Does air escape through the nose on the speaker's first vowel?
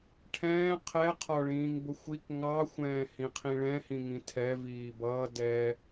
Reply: yes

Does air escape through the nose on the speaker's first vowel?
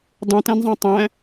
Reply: yes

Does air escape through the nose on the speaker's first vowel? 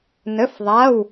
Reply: no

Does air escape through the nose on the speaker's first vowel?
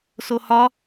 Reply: no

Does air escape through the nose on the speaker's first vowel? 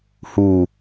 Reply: no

